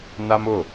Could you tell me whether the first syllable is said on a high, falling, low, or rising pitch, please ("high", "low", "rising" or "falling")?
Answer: high